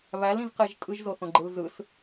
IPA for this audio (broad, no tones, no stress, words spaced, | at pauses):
βælĩzqeʒ tʼɯʒzoθõɡ͡ǃɯl zɯs